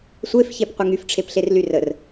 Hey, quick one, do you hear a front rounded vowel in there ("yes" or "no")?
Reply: yes